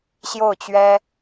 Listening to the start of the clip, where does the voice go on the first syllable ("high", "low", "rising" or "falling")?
falling